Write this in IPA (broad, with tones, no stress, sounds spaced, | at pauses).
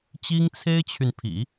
t͡ɕ i˥ ŋ t͡sʰ e˥ ɪ̯ t͡ɕʰ y˨ n pʰ ḭ˨˩˦